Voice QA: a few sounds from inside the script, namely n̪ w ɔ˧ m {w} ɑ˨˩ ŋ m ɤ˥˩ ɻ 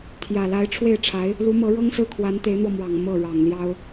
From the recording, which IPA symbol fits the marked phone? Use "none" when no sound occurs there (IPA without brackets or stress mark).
w